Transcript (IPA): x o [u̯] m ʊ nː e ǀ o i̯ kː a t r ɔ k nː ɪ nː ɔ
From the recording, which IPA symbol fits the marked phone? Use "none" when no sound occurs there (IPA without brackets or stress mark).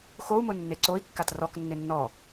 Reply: u̯